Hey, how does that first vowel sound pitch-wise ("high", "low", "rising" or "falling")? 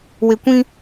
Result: low